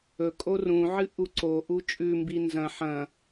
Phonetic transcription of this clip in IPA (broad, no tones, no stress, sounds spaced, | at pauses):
ɵ kʼ o r ũ ʕ ɨ ʔ u ǀ o ʔ u t͡ʃʼ ʉ m b i n z ɐ̃ ħ ɐ̃